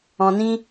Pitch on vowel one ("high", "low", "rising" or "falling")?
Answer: low